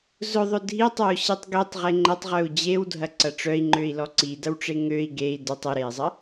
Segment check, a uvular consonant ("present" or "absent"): present